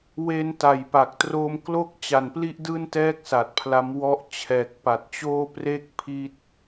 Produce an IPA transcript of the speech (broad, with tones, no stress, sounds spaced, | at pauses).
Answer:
w e˧ n t a˨˩ j p a˨˩ k̚ t r oː˧ m k l o˥˩ k̚ t͡ɕ a˨˩ n p l i˥˩ ʔ d ɯː˥˩ n t ɛː˥˩ k̚ s a˨˩ t̚ pʰ l a˦˥ m w ɔ˥˩ ʔ t͡ɕʰ ɛː˨˩ k̚ p a˨˩ t̚ t͡ɕ oː˥˩ p r e˥˩ k̚ pʰ i˥˩ t̚